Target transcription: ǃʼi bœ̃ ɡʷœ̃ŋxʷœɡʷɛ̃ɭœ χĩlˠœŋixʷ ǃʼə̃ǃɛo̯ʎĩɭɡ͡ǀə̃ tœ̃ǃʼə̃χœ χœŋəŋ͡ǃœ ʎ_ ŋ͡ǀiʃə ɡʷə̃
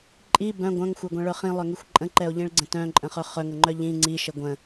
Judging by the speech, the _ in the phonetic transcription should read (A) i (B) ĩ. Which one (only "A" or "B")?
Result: B